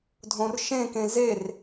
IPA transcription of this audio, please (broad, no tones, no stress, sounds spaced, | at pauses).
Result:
dʱ õ r ʃ ẽ k ẽ z e r